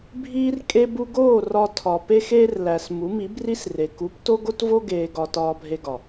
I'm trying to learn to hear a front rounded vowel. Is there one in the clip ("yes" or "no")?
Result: no